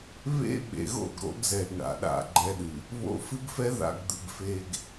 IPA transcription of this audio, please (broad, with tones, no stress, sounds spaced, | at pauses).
β ḛ˦ ɓ ḛ˨ ɣ o̰˦˨ ɡ ɾ o̰˦ ɡ z ɛ˨ ɡ ɳ a̰˨ ɗ a̰˦˨ ɡ͡ǃ ɛ˦ ɗ ɨ˨ | β o̰˦ f ɨ˦ ɡ f ɛ˦ ð a̰˨ ɡ d̪ ɨ˨ ɡ f e˨ ɡ